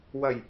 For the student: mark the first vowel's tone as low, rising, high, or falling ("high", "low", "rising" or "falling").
low